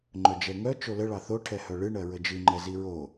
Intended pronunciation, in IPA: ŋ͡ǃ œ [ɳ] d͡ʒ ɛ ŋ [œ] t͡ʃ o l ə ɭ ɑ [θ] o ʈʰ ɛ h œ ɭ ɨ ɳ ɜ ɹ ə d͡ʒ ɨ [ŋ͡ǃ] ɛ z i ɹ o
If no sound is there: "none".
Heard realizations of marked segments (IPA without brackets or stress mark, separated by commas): none, œ, θ, ŋ͡ǃ